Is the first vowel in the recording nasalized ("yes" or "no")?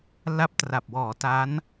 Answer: no